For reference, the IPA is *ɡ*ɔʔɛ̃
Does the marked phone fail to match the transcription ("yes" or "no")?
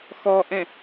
yes